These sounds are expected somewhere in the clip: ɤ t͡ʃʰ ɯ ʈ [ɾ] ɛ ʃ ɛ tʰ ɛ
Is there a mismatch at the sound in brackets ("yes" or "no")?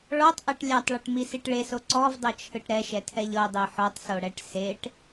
no